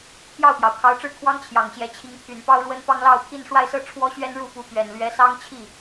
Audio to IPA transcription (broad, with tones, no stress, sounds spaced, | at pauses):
pʰ j ɑ˥˩ ʊ̯ p j ɑ˩ ʊ̯ kʰ ɑ˧˥ ʊ̯ ʈ͡ʂ ɻ̩˥˩ kʰ w ɑ˥ ŋ t͡ɕʰ j ɑ˨˩ ŋ ɕ j ɛ˧˥ t͡ɕʰ i˧˥ ŋ pʰ y˨˩ n p ɑ˥ ʊ̯ ɻ w ə˥ n p ɑ˥ ŋ l ɑ˥˧ ʊ̯ pʰ i˥˧ n ʂ w a˥˧ ɪ̯ s ɤ˥˩ ʈ͡ʂʰ w ɔ˥ ɕ ɥ ɛ˥ n ɻ u˥˩ p u˧˥ p ɥ ɛ˨˩ n l ɥ ɛ˧˥ s ɑ˥ ŋ t͡ɕʰ i˥˩